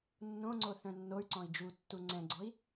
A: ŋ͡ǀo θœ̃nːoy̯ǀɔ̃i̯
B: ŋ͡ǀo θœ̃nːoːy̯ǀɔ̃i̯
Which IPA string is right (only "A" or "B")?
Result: A